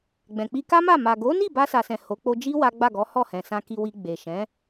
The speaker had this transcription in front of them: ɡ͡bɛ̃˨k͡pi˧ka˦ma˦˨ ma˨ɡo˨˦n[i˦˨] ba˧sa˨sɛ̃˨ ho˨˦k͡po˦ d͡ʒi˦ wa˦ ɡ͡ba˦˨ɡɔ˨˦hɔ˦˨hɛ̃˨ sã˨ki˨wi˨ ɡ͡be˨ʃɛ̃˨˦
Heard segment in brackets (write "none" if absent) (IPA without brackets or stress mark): i˦˨